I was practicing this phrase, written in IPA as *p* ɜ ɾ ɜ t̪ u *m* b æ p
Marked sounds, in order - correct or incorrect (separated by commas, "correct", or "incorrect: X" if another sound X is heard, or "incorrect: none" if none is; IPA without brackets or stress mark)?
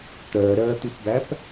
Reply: incorrect: t̪, incorrect: p